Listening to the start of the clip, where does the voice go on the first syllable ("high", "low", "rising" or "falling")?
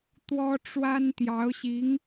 high